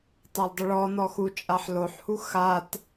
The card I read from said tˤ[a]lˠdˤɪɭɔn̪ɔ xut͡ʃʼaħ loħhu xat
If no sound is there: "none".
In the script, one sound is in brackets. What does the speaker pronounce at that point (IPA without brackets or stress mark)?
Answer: a